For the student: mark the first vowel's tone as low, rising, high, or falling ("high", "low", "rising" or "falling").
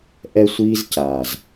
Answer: high